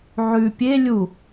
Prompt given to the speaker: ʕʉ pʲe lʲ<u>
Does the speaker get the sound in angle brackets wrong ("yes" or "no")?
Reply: no